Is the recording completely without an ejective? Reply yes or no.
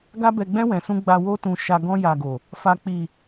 yes